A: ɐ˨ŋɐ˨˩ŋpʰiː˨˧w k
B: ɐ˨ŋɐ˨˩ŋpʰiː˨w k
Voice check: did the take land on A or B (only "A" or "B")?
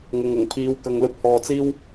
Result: A